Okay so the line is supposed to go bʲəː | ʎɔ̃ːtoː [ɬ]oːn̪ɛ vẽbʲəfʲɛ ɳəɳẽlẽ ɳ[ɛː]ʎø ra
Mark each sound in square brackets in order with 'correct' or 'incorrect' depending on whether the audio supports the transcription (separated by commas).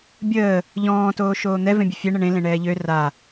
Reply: incorrect, correct